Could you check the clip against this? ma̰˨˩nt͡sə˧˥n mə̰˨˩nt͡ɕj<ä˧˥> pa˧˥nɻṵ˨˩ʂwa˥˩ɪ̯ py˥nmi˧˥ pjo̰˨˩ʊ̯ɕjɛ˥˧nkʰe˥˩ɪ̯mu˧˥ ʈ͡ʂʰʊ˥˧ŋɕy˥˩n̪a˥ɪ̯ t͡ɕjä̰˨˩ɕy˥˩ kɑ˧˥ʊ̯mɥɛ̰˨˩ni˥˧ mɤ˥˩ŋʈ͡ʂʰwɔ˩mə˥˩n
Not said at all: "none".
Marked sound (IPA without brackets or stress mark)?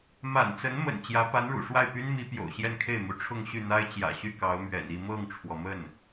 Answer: ä˧˥